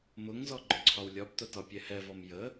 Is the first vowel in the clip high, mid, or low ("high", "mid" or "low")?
high